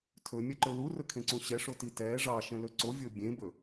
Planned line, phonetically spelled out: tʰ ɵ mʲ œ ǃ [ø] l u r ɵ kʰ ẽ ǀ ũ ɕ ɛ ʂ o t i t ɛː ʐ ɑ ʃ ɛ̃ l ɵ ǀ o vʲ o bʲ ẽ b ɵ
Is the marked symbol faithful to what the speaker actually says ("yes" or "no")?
no